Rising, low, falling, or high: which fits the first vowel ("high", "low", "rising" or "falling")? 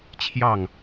falling